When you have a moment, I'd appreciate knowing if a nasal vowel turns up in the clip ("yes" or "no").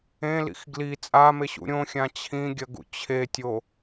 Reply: yes